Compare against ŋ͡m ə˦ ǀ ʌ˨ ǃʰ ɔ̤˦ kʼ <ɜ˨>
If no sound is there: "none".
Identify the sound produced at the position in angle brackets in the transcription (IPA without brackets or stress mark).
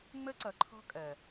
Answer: ɜ˨